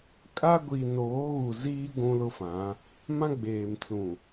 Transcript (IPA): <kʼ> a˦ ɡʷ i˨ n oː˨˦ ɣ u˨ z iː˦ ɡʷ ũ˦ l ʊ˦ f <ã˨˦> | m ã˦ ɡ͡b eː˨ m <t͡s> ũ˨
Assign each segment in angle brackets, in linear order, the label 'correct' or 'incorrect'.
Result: correct, correct, correct

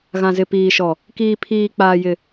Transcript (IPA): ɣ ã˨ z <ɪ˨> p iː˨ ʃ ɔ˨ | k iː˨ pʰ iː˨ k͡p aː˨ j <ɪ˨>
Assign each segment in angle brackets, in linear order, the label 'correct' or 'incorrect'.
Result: correct, correct

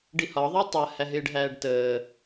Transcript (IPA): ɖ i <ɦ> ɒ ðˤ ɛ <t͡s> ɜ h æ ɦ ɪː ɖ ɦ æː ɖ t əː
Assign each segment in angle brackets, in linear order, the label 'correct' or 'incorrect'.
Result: incorrect, incorrect

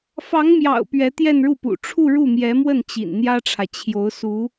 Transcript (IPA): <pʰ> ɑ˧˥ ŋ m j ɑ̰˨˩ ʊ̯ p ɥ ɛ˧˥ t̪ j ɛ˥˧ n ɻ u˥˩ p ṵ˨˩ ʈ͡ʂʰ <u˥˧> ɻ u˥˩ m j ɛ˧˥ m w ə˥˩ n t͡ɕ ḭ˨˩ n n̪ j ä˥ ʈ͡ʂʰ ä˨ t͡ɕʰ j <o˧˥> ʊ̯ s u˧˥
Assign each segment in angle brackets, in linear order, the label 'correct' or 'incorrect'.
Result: incorrect, correct, correct

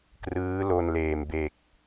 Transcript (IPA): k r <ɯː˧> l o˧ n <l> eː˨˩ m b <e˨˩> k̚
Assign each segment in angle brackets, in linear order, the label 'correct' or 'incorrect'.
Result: incorrect, correct, correct

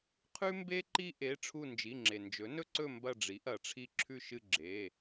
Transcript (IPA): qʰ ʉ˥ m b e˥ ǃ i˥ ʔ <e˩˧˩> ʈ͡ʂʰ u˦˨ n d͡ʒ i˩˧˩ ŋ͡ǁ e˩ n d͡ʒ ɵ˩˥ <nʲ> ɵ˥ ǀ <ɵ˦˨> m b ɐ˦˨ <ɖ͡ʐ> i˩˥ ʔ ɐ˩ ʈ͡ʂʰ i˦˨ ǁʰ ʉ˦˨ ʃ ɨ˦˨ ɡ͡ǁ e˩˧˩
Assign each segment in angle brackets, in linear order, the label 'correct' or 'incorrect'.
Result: correct, incorrect, correct, correct

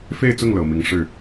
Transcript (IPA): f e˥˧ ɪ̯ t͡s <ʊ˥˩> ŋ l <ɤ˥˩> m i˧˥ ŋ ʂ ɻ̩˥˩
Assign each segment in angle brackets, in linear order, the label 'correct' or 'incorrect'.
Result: correct, incorrect

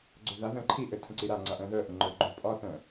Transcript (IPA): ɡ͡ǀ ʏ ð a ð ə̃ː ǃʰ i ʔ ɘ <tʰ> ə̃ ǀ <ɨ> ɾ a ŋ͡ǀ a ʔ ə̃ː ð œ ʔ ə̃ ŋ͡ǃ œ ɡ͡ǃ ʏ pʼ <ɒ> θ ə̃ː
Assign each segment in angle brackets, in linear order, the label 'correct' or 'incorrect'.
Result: correct, incorrect, correct

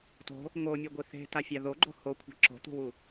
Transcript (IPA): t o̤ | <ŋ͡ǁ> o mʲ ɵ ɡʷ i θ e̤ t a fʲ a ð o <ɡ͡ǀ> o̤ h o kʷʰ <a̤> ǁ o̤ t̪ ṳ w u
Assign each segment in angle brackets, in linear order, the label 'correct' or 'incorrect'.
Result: incorrect, incorrect, correct

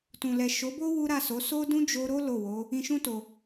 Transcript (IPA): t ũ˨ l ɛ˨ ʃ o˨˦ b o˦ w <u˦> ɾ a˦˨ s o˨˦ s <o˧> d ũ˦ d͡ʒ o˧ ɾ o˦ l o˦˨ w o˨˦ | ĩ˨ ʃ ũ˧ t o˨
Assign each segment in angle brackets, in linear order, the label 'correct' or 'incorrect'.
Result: correct, incorrect

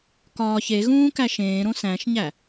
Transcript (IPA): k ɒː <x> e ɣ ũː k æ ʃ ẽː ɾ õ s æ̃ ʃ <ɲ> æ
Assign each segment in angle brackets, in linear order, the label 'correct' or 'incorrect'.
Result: incorrect, correct

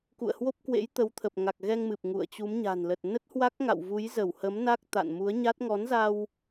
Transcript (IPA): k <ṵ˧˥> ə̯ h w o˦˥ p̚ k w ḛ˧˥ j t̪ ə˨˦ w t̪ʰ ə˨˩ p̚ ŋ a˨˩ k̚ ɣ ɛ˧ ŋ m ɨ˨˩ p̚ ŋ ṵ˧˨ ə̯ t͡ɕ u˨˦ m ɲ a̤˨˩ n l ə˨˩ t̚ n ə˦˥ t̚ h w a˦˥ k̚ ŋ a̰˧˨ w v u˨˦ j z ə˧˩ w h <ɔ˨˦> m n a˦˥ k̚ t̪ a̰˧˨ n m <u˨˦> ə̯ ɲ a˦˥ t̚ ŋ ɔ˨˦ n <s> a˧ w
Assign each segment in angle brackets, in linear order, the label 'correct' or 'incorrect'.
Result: incorrect, incorrect, correct, incorrect

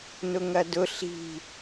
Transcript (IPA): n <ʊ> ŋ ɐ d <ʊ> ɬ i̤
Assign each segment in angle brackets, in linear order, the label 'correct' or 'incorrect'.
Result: correct, correct

